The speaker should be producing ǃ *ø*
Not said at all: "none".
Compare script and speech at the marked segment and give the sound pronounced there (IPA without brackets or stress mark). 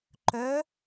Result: œ